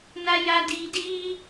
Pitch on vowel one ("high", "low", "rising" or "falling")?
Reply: high